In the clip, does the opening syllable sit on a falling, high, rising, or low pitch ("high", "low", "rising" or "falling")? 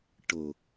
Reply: low